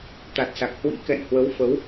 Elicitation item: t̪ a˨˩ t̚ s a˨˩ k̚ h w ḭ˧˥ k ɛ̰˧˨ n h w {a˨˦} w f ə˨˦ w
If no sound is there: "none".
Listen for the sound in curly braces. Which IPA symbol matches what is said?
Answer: ə˨˦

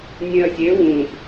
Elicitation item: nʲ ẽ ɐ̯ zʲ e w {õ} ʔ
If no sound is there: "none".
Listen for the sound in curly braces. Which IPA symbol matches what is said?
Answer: ũ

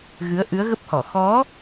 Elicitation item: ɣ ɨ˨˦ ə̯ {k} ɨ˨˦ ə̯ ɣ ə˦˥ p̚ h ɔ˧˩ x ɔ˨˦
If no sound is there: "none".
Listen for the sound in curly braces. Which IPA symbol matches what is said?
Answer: ʔ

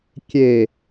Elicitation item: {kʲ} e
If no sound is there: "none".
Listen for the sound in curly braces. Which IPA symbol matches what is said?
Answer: kʲ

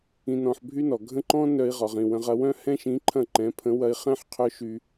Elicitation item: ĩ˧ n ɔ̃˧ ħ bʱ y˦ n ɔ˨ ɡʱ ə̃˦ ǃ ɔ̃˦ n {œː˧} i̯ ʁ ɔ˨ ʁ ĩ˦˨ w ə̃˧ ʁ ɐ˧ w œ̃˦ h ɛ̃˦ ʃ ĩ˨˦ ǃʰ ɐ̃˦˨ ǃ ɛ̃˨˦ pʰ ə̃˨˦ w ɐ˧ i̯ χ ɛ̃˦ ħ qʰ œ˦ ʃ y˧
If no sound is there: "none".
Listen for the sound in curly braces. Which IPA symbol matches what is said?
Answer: œ˧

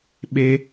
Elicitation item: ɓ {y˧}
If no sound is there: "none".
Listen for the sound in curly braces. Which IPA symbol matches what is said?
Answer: e˧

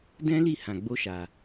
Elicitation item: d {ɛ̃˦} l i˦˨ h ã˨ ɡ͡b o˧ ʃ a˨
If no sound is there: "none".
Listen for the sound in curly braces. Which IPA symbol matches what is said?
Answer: ɛ̃˦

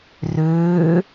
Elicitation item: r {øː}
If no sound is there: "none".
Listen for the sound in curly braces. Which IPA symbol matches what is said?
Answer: øː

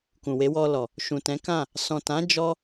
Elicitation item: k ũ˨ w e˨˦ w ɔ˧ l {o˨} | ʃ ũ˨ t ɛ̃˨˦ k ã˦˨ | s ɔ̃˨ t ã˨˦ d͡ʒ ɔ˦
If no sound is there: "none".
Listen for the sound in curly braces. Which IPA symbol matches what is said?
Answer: ɔ˨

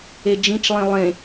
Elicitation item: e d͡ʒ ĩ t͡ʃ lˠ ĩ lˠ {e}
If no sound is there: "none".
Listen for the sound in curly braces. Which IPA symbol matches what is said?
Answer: ẽ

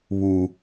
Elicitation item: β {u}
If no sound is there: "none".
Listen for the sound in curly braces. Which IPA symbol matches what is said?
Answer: u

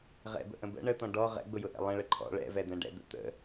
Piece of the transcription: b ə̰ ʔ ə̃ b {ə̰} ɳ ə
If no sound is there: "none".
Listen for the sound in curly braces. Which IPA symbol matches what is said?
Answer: ə̰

